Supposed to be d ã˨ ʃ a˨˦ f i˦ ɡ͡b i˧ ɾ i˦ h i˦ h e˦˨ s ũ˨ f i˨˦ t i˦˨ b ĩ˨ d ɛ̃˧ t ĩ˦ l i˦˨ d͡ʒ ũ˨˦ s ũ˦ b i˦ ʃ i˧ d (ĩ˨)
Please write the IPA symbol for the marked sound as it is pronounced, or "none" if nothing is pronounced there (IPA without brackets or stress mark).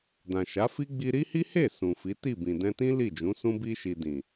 ĩ˨